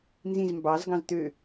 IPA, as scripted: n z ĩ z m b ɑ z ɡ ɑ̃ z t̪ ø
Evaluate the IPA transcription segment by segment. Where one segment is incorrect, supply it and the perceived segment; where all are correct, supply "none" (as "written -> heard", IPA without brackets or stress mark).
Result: none